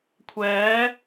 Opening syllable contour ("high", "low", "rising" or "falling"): rising